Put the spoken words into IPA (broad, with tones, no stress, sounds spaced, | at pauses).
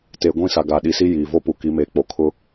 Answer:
t eː˨ ɡʷ ĩ˦˨ s a˨ ɡ a˨ ɗ i˨ s i˦ j iː˨ v o˦ p u˨ k i˨˦ m eː˨ k͡p o˨ kʰ ʊ˦